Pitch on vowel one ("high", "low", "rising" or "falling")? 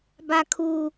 low